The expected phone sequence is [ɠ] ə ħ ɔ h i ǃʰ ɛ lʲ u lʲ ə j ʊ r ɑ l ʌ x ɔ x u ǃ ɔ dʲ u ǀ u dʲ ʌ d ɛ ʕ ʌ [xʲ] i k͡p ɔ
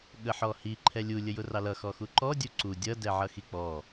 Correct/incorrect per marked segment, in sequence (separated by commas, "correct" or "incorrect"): correct, incorrect